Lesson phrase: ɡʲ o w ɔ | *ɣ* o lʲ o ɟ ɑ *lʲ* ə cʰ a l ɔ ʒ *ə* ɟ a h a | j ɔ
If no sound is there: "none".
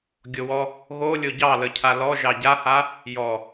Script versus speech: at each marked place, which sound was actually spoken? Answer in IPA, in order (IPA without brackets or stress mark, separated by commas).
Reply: ɣ, l, ɑ